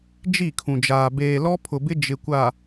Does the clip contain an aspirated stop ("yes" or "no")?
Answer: yes